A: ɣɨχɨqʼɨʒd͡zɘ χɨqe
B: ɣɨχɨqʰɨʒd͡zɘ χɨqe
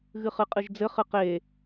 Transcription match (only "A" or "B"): A